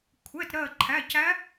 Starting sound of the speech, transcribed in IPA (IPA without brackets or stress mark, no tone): kʷʰ